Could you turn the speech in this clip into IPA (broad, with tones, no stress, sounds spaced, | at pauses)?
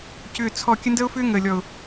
c ʏː˨ t͡sʰ ɔ˨ kʲ ə˦ n d əː˦ ʊ̯ f ʏː˦ ŋ əː˨ lʲ ɔ˨ ʊ̯